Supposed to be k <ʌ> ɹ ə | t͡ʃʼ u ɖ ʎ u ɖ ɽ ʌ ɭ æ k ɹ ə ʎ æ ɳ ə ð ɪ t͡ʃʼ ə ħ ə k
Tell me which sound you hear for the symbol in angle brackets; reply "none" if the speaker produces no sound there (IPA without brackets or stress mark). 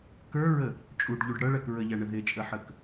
ə˞